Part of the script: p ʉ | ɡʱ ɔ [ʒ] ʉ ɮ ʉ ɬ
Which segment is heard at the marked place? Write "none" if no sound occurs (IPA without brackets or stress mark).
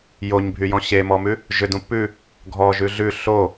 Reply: ʒ